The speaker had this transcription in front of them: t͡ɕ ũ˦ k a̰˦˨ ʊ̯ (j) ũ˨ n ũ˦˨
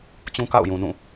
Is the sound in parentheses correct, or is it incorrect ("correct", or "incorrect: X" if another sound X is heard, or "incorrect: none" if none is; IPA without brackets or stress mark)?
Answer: correct